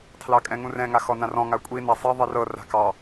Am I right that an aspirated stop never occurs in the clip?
no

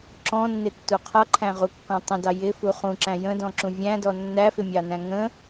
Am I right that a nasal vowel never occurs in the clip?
no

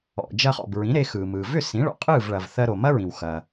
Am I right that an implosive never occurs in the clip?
yes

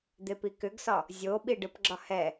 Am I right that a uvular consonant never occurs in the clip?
yes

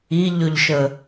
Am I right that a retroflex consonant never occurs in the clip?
yes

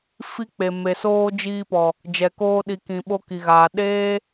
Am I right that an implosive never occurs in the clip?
no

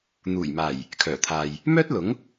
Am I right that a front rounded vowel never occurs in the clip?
no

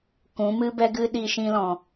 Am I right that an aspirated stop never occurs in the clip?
yes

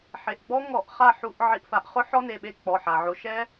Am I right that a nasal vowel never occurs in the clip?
yes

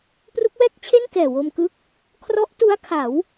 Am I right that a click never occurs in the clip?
yes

